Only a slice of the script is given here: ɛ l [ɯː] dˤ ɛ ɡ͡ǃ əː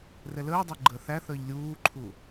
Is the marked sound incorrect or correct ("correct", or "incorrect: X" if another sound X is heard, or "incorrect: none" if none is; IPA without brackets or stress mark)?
incorrect: əː